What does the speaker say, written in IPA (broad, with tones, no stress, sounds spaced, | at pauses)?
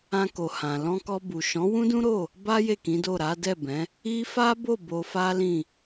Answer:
ã˧ k o˨ h ã˨ l ɔ̃˧ k ɔ˧ b u˨ ʃ ɔ̃˨˦ w ũ˦ d ũ˦ ɾ o˦˨ | b a˦ j e˦˨ k ĩ˨˦ d o˦˨ ɾ a˨˦ d ɛ˦˨ b ɛ̃˨˦ | i˦ f a˦ b o˦˨ b o˧ f a˦ l ĩ˦˨